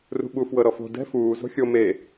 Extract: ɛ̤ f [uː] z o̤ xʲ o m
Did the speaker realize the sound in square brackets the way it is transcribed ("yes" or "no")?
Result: yes